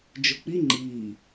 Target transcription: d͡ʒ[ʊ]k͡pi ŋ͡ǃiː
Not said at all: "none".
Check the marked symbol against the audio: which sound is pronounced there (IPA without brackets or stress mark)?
ʊ